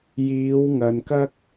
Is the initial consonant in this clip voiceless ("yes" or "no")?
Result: no